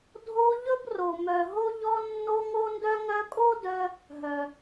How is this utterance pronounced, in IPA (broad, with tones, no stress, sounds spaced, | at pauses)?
dʱ o˦ ʎ ɵ˥ b r o˨ m œ˨ ɦ o˦ ʎ ɔ˦ nː o˦ ŋ o˦ n d œ˦ ŋ œ˦ kʼ o˥ d œ˦ | ɦ œ˨